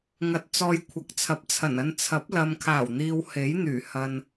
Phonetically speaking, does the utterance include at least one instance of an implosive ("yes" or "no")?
no